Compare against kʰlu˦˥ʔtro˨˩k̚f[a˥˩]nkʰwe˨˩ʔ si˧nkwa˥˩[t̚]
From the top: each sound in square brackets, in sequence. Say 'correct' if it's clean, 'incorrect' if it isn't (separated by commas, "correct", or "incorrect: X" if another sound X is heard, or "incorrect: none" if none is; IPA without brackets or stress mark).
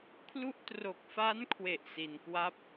incorrect: a˦˥, incorrect: p̚